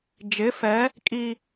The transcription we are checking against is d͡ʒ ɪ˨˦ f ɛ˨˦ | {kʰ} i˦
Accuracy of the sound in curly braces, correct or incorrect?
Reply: incorrect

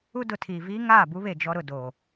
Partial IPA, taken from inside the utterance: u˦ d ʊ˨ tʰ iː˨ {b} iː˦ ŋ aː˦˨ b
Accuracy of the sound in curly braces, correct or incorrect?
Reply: incorrect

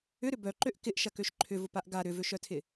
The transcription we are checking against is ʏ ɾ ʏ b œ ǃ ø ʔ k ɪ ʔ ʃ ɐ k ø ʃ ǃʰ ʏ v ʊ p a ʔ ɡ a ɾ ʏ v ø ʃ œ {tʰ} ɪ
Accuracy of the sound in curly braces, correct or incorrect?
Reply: correct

